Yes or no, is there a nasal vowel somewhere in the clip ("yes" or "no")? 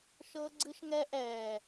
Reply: no